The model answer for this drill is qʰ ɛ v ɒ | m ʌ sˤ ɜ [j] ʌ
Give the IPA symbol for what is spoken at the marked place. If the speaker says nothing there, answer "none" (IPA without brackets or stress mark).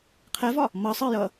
j